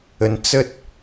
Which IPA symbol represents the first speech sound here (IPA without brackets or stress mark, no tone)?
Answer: ə